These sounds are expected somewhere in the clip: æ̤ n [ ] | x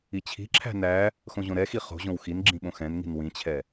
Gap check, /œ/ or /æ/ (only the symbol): æ